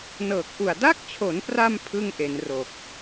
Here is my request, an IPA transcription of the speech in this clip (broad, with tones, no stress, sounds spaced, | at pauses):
n ɤː˨˩ k̚ ʔ u˨˩ a̯ d a˥˩ k̚ t͡ɕʰ o˩˦ n p r a˧ m pʰ ɯ˥˩ ŋ ʔ e˩˦ n r o˨˩ k̚